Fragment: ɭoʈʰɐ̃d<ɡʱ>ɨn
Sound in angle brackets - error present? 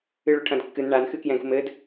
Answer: yes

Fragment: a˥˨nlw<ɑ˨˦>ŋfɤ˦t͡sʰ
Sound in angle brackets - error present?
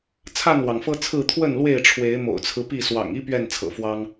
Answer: yes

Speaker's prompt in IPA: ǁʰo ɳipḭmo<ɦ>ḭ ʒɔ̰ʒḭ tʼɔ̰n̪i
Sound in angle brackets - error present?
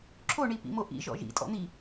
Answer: yes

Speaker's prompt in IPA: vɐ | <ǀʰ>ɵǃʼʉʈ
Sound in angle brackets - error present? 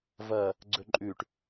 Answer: yes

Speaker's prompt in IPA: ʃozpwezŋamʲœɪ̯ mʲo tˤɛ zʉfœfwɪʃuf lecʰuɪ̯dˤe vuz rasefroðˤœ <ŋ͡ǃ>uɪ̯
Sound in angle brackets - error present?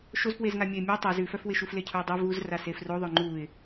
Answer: no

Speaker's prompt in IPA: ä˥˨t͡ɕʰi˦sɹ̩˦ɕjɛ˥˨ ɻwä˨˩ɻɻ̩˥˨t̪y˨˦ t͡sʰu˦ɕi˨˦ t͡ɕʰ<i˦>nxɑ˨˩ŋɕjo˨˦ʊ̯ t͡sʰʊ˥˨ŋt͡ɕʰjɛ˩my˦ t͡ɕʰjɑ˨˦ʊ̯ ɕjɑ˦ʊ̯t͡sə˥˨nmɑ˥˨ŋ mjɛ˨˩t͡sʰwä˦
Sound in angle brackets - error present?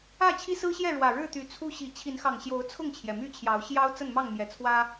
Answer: yes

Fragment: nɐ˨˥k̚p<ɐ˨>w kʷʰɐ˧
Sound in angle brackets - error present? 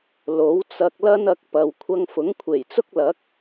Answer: no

